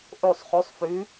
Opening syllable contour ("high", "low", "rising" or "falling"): falling